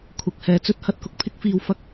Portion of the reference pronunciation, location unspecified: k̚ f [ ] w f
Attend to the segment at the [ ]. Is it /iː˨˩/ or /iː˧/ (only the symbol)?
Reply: iː˧